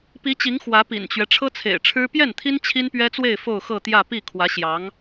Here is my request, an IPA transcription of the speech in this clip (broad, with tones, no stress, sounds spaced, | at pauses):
p i˧˥ t͡ɕ i˧˥ ŋ x w ä˧˥ p ḭ˨˩ n t͡ɕ ɥ ɛ˦ ʈ͡ʂʰ ɤ˥ t͡sʰ ḛ˨˩ ɪ̯ ʈ͡ʂʰ ɻ̩˥ p j ɛ˥˩ n t̪ʰ i˥ n t͡ɕʰ i˥ n p ɥ ɛ˥ t͡s w e˥˧ ɪ̯ f o˥˧ ʊ̯ x ɤ˥˧ t̪ j ä˥˧ p i˥˩ kʰ w ä˧˥ ɕ j ɑ˧˥ ŋ